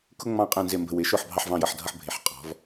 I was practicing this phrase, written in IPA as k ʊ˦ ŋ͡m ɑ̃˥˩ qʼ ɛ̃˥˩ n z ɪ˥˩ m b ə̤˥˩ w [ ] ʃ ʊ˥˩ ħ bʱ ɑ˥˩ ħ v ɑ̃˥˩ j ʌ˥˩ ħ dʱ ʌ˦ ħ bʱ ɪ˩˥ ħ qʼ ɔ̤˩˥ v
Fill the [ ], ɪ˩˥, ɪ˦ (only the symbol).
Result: ɪ˩˥